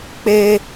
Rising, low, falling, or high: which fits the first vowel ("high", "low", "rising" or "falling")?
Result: high